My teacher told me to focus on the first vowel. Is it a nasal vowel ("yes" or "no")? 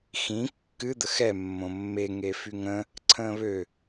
yes